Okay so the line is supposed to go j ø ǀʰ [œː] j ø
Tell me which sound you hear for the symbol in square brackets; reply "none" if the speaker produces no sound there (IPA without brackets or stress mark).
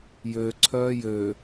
œː